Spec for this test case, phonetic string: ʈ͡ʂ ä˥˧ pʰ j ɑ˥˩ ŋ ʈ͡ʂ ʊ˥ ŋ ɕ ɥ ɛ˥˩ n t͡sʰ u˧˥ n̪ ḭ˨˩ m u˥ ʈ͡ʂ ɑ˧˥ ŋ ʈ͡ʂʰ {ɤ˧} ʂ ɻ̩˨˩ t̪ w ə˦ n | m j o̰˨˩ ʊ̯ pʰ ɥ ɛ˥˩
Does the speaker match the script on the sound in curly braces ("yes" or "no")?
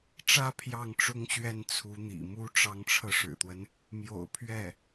yes